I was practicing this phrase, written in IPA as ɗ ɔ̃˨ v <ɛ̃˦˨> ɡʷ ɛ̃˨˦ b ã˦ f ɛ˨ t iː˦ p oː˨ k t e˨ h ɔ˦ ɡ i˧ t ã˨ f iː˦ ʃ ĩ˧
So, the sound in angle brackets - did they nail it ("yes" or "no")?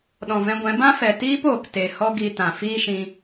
no